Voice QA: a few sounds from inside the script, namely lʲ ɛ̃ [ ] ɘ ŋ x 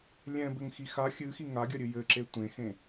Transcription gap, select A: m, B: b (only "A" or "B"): B